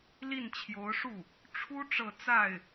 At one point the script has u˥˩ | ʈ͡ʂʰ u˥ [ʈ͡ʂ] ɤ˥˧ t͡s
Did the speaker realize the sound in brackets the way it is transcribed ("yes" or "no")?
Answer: yes